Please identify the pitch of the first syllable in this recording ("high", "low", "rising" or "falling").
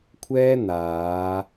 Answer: high